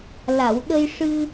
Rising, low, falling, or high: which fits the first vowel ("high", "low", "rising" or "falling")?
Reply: low